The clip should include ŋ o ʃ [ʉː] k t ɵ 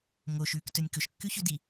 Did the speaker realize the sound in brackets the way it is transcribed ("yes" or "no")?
yes